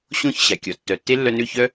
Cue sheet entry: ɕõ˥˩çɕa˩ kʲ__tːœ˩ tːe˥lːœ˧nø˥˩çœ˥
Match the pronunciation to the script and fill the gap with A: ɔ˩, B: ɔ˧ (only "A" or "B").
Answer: A